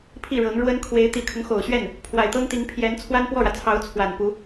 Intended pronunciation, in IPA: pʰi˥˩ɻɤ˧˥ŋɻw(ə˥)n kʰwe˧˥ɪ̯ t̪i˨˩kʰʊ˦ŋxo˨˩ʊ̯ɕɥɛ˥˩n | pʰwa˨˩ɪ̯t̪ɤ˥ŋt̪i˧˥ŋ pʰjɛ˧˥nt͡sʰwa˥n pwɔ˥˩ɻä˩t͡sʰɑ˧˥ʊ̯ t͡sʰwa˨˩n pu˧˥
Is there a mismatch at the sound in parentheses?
no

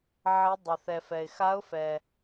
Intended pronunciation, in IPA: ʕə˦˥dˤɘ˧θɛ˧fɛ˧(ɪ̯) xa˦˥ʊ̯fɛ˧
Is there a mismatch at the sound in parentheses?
no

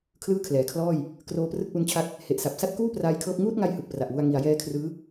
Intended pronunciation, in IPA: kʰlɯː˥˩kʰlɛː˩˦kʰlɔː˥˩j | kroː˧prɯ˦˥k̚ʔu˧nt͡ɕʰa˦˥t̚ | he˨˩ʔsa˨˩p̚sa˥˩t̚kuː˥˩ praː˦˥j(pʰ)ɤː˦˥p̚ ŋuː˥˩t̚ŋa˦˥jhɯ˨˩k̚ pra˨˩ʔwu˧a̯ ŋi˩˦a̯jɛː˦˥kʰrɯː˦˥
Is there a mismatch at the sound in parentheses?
yes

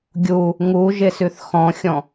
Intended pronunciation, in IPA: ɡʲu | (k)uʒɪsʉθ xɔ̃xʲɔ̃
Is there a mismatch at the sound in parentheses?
yes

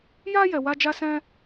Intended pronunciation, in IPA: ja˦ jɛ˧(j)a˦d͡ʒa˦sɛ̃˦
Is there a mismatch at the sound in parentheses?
yes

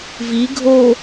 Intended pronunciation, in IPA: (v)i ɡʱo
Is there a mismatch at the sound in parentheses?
no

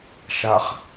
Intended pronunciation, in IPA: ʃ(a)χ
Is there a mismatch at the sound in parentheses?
no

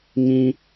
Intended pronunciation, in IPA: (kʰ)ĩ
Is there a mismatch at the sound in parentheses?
yes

